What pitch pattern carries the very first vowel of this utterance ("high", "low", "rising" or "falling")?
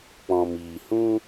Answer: low